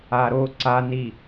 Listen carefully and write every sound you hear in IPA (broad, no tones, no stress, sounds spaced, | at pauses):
a ɾ o ǀ a n i